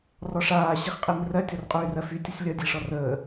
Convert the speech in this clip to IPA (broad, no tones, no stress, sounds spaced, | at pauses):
r ɔ ʂ aː ɕ i χ qʼ i m r ɜ tʲ ɔ r qʼ yː r ɜ f y tʲ ʌ sʲ lʲ ʌ dʲ e ʂ ɔ r əː